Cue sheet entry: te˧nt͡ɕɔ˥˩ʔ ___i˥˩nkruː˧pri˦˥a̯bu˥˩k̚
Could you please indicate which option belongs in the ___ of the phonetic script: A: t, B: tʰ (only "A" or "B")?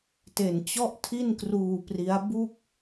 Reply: B